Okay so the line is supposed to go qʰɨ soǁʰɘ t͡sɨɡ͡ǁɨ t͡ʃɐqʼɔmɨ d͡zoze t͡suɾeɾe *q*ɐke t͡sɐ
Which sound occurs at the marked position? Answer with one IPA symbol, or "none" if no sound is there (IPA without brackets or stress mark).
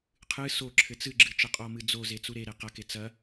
q